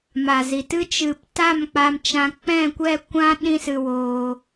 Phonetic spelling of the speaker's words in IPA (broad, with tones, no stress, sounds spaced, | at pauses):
m a˨ z i˨ t ɨ˦ t͡ʃ ɨ˨ p t a˦˨ m k͡p a˧ m t͡ʃ ã˧ k͡p ɛ̃˦˨ kʷ ɛ˦˨ kʷ ã˦ ɗ ĩ˦ s ɨ˧ w oː˧